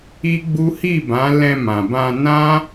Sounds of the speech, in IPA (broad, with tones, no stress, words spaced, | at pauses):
i˦ɡ͡bu˦ hi˦˨bã˨˦ lɛ̃˧mã˨bã˧nã˦